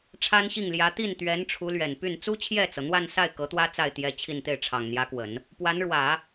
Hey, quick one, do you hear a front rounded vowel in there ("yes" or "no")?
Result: yes